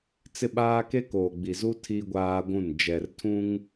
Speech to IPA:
t͡s ɪ˦ ɓ aː˦ k e˦ k oː˨ ɡ͡b i˨ z u˦ tʰ i˦ ɡʷ aː˦ ɡʷ ũ˦˨ n d͡ʒ ɛ˨ r tʰ ũ˦ ŋ

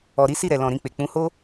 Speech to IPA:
ɔ˨ ɾ i˨˦ s i˦˨ ɾ ɛ˨ l ɔ̃˨ ɾ ĩ˧ k͡p e˨ k͡p ũ˨˦ h o˦

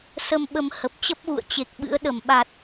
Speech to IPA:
s ə˧ m ɓ ə˧ m h ə˨˩ p̚ t͡ɕ ə˦˥ p̚ ɣ ṵ˧˨ ə̯ t͡ɕ e˨˩ k̚ ɓ ɨ̰˧˥ ə̯ ɗ ə˧˩ m ɓ a˨˩ t̚

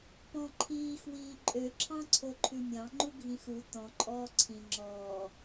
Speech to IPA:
p ɔ̃ ǃʰ iː x w iː ǃʼ ø ǁʰ ɑ̃ ǀʰ o ǃʰ ʉ mʲ ɑ̃ ŋ͡ǃ u ɡʱ ĩ x u t ɔ̃ ǃʼ ɔː ǀʰ ĩ ŋ͡ǁ ɔː

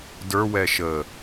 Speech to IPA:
d ə˞ w ɛ ʃ ə

